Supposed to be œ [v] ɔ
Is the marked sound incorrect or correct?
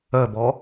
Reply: incorrect